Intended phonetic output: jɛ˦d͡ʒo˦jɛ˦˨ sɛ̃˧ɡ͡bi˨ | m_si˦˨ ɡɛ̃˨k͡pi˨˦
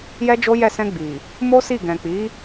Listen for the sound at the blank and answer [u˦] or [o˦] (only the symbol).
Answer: o˦